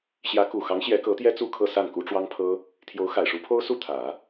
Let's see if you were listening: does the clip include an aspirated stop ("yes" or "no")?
yes